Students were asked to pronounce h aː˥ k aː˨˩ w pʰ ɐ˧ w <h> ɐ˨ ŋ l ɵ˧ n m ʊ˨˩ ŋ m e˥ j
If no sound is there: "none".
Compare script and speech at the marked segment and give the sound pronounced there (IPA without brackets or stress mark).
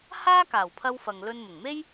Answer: f